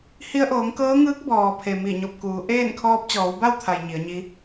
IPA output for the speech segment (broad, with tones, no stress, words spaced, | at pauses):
hi˧ə̯ʔoː˩˧ŋkɤː˧˥ŋɯː˧˥k̚ bɔː˩pʰe˩ mi˧˩ɲo˧˩p̚kuː˩˧ ʔeː˥˨n kʰɔː˧p̚t͡ɕɔː˩˧wba˥˨wt̪ʰa˩j ɲi˩˧ə̯ɲi˧˥